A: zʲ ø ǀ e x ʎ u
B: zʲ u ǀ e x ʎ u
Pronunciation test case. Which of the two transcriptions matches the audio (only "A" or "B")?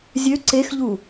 A